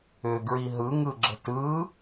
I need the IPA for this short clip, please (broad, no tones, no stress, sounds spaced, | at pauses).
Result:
ʏ ɡ ɹ i ɦ ɯ ŋ ɯ ɡ͡ǁ ə̤ t ɯ